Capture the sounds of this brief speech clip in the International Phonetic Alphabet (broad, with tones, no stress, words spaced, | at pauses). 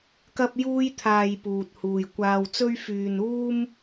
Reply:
kɐ˥p̚ juː˥jt̪ʰaː˧jpuː˨t̚ huː˨jkʷaː˧wt͡sɵ˥ɥ fyː˧nuː˥m